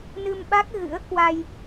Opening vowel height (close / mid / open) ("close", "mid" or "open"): close